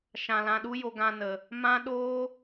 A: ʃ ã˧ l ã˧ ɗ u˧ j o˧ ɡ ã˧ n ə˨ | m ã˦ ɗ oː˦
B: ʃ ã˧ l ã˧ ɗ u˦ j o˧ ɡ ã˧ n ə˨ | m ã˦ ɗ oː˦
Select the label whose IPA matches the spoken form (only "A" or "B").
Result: B